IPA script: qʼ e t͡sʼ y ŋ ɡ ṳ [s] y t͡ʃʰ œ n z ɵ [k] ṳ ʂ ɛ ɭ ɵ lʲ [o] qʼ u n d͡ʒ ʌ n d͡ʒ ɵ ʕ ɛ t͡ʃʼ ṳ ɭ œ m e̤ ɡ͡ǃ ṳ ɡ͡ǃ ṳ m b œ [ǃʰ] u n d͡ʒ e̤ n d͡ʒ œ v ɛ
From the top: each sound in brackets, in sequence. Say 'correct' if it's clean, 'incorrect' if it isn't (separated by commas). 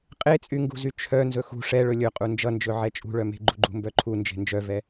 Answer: incorrect, incorrect, incorrect, correct